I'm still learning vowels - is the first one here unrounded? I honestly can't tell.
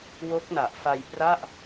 no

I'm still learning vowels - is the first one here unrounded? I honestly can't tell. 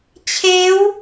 yes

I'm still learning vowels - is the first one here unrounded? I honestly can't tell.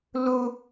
no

